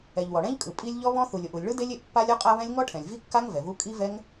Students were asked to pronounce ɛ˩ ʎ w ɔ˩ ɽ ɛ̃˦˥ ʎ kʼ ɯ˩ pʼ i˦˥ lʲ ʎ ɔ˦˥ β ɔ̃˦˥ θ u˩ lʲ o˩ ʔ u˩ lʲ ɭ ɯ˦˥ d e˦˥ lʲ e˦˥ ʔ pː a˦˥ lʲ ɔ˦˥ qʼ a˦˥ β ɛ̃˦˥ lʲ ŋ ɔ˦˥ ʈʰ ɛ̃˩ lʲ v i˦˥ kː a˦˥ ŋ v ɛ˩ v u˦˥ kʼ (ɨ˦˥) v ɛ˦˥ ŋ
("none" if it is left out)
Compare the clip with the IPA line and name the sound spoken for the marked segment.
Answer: i˦˥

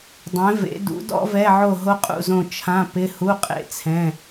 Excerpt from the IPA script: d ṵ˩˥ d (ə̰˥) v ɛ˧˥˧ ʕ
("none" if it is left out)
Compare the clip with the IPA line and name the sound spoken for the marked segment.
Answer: ɔ̰˥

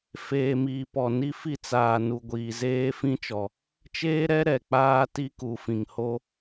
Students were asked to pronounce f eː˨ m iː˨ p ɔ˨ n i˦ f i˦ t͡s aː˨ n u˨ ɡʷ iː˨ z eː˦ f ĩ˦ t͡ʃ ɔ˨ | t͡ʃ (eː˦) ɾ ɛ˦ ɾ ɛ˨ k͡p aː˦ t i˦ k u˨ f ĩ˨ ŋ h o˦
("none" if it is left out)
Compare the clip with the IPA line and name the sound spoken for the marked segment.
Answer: eː˦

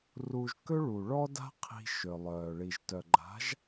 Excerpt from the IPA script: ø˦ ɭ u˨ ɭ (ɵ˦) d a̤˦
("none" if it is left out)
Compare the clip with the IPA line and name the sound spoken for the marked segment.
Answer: ɔ˦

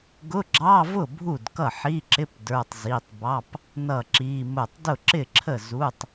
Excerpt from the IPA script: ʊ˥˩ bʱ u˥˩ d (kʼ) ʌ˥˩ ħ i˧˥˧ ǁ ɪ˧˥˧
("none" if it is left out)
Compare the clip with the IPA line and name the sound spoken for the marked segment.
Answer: k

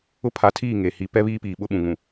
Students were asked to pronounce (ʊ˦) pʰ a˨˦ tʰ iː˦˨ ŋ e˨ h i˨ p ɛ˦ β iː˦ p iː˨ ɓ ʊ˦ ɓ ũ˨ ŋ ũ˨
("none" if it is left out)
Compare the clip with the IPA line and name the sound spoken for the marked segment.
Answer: ʊ˦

